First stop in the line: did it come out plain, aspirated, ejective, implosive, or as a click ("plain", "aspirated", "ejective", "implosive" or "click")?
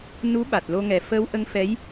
implosive